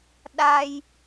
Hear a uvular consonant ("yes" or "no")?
no